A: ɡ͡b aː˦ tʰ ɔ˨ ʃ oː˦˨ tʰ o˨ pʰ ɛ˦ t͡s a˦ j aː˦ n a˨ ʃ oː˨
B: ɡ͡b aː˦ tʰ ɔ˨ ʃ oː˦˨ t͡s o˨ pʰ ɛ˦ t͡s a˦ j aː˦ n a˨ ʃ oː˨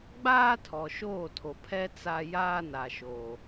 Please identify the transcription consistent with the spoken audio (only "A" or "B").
A